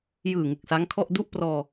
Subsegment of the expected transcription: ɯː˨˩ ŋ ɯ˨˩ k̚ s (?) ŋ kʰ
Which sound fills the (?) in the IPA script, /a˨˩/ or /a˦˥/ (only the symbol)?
a˦˥